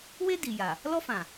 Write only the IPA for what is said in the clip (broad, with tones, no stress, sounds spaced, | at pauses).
w e˦ d i˨ j a˨ | l ɔ˦ f ã˨